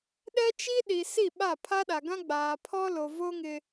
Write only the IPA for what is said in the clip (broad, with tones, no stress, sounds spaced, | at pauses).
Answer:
ɗ ɛ˦ t͡ʃ i˦ ɗ i˨ s i˦˨ ɓ a˦˨ pʰ a˦ ɗ a˨ ɡ ã˦ ɡ͡b aː˨ pʰ ɔ˦ l o˨ v o˦ ŋ ɪ˦